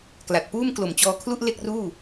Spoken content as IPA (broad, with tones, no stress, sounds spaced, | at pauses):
k l a˨˩ t̚ p uː˥˩ m k l o˨˩ m t͡ɕ ɔː˧ kʰ l u˥˩ ʔ l e˥˩ k̚ r uː˥˩